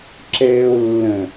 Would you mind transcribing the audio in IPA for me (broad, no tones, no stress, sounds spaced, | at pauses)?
ǁ ɛː o̯ lː ə̃